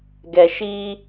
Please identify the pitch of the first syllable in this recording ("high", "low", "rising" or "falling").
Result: low